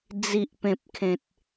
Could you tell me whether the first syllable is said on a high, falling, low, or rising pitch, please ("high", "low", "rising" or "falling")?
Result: low